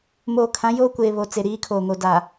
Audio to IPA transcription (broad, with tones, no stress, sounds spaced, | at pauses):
m oː˨ kʰ ã˨˦ j oː˦ kʷ eː˨ β o˨ t͡s e˨ ɾ iː˨˦ kʰ oː˨ ŋ o˨ d a˨